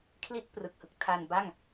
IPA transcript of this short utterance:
kʰli˥˩t̚ prɯ˨˩k̚hɯ˨˩k̚tʰaː˧nba˥˩ŋ

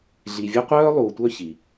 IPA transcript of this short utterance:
ɮi˨vʲœ˦qʷœː˥ lˠuː˨tʷœ˥çi˩

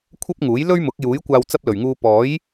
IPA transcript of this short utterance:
kʷʰɐ˥p̚ŋuː˨˥j lɵ˥ɥmʊ˨˥k̚juː˨˥j kʷaː˧w t͡sɐ˥p̚lɵ˨˩ɥŋuː˧ pɔː˨˥j

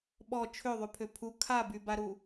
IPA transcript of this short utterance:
ɓɔ t͡ʃʰøðˤypʰø pʰu kʰabybaɾu

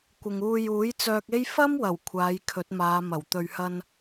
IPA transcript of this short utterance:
kʷɪ˨ŋuː˧ juː˨˥jt͡sœː˧k̚e˥j fɐ˥mwɐ˨˩w kʷʰaː˨˧jkʰɵ˨˥t̚maː˨˧ mɐ˨˩w t̪ɵ˨ɥhɐ˧n

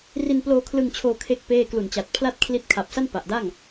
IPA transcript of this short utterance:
ri˧nploː˧kʰlɯ˧ŋt͡ɕʰoː˧ kʰe˥˩k̚ peː˥˩ klu˨˩nt͡ɕa˨˩t̚pʰla˥˩t̚ kʰli˦˥t̚ kʰa˨˩p̚sa˥˩n pa˨˩ʔda˥˩ŋ

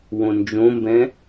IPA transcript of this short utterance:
wõnd͡ʒõmbɛ̃

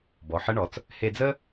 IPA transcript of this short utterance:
bɔ˩˧ħə˧˥ɳɔ˩˧t͡s | he˧d͡zə˥

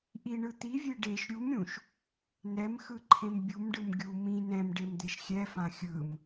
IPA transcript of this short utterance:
ʔiɳɯ t̪ivʲe ɖeʃ ɾʲumɾʲũʃ | nɛmxɯǃʰẽm bʲumɖɯm ɡʲu mĩ nɛ̃mɖemd̪eʃ xʲɛfã xʲɯm

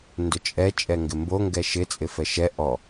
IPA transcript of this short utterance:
ndʊt͡ʃʼɛ t͡ʃʼɛŋɡɪmbo ŋɡɛʃɪ t͡sʼɪfɛʃɛ ʔɔ

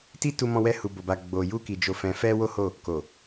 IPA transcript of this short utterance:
ti˦tu˧mɔ̃˧wɛ˧ hu˨bo˨ba˨ ɡ͡bo˨ju˧ki˨ d͡ʒo˨fɛ̃˨fɛ˧ wo˦ho˦˨ | ko˨

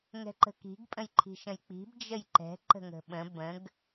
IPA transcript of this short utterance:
ŋɛ̤ǃə̤ki̤ɡ pʼə̃jǃʰi̤ʃə̃jk͡pi̤b d͡ʒəjǃɛ̤ ǃə̤ŋə̤ɓə̃ bə̃ɡ

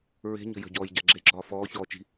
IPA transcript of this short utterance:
ɹe̤ɲə̤ jə̤ɟɔːj ɟaɡ͡ǁeɡ͡ǁɒː fɔːçɔː t͡ʃi̤

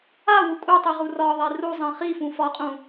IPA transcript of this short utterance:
awu kʼutˤi ʁurɒðˤe ruzˤĩ χifũ fɒqʼũ

